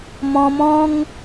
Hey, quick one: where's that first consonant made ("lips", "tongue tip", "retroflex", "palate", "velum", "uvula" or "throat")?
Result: lips